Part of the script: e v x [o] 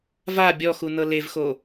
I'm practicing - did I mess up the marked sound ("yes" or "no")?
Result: no